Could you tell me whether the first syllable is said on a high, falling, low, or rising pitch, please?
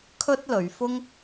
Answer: high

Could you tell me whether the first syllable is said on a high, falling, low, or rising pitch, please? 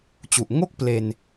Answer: low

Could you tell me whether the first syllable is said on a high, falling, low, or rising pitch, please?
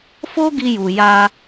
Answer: high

